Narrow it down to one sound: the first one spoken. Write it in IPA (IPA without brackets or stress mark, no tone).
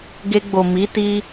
ɡ